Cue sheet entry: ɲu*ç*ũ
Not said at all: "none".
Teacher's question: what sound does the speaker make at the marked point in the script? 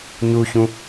ç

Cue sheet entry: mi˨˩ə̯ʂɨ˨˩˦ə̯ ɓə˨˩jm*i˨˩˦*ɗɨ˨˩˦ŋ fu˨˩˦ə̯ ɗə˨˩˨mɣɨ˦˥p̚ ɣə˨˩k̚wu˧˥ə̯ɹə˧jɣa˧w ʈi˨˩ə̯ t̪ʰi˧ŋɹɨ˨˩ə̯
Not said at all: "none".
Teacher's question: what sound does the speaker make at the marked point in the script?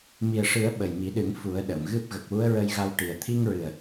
i˨˩˦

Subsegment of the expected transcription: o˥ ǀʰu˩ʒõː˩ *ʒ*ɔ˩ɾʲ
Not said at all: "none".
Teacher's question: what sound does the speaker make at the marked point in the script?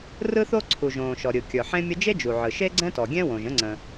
ʃ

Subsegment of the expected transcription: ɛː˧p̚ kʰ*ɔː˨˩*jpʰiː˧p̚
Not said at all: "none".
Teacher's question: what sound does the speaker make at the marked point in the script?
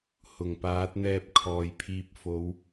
ɔː˨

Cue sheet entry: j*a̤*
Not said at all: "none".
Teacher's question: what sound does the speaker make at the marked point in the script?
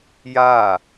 a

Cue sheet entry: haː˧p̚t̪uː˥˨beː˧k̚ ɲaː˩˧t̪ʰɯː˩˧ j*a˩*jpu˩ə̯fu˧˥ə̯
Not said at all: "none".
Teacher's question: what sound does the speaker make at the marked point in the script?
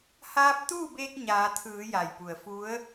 a˩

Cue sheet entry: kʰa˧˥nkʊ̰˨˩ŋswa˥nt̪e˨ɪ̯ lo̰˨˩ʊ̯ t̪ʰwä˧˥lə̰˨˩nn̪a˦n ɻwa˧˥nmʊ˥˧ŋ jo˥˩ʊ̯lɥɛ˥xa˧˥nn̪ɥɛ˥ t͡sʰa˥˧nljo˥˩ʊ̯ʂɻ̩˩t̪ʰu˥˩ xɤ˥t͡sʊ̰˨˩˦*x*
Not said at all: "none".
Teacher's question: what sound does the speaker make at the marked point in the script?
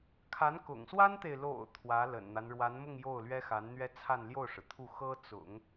ŋ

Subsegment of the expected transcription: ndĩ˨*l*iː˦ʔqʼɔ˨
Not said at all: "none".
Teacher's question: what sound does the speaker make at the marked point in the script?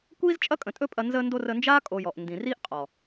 r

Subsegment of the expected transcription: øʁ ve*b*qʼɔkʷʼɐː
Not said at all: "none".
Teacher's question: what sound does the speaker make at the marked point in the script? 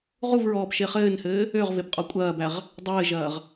b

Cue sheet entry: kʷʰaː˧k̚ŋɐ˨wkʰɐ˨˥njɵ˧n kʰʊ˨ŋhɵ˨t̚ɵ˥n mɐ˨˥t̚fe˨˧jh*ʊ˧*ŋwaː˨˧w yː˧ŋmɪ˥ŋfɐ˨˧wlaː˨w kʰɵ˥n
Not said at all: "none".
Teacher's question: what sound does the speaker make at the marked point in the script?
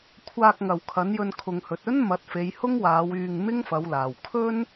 ʊ˥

